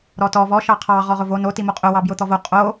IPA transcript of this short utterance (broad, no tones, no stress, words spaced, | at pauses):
ɾɔtɔ vɔ ʃɑqʰɑ ʁɔʁʊvo no timoqʼʊ wɑbjʊt̪ɔvo qʼo